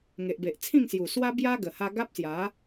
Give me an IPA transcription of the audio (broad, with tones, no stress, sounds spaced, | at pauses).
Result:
ŋ e˨ ʔ b e˨ ʔ t͡sʰ ĩ˥˧ ŋ s j u˨˩ s w a˧ b j a˧ ɡ ə˨˩ h a˧ ɡ a˦ p̚ s j a˨˦